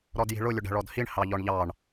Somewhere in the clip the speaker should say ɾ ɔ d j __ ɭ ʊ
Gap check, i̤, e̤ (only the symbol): i̤